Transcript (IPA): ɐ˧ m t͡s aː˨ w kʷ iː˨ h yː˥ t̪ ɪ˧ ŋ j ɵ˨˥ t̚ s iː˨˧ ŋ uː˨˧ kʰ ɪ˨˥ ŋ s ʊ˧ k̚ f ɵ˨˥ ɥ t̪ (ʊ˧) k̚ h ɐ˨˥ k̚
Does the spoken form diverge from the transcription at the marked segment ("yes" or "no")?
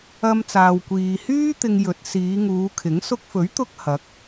no